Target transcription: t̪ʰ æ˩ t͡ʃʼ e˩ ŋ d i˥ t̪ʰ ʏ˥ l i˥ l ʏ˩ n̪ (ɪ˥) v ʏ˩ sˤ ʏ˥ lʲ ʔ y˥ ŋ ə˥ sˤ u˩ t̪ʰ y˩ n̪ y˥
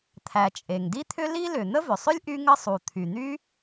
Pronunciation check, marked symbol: incorrect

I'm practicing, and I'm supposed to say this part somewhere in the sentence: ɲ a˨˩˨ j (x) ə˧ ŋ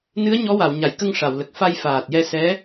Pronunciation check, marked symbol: incorrect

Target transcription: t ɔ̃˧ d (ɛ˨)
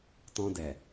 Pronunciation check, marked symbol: correct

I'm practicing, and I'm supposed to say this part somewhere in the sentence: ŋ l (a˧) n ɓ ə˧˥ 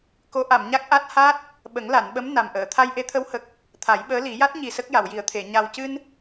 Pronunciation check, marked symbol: incorrect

